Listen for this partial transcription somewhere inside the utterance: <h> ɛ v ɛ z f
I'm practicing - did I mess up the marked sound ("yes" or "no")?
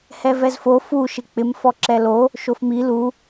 no